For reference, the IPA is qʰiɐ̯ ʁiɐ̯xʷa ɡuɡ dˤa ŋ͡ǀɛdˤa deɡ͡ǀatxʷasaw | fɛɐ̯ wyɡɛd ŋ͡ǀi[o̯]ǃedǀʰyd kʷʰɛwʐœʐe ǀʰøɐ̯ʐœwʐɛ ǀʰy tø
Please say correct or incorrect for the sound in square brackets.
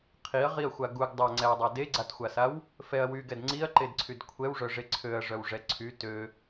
incorrect